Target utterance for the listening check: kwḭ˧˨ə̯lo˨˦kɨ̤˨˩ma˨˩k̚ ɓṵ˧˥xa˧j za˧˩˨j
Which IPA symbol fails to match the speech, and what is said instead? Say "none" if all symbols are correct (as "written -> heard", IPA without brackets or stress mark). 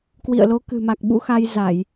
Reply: none